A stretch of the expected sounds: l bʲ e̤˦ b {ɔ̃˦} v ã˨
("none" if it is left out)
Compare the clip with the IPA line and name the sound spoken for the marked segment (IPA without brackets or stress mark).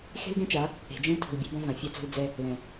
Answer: ɔ̃˦